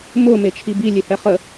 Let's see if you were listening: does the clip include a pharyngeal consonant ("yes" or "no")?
no